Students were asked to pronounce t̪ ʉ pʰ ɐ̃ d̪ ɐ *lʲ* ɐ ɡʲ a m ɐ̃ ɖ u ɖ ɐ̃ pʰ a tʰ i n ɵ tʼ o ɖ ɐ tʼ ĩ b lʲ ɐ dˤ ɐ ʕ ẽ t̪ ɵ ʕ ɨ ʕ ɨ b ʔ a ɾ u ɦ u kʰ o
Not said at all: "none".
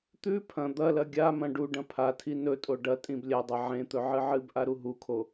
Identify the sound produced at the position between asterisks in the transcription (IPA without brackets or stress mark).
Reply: l